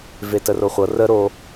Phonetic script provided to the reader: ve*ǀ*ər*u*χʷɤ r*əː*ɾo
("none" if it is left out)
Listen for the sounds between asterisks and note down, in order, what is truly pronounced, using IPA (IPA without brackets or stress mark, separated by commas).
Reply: t, o, ə